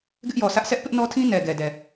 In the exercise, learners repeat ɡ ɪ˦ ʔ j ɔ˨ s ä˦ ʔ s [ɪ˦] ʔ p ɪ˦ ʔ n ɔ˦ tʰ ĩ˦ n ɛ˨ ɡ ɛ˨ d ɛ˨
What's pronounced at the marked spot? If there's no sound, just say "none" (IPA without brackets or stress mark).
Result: ɛ˦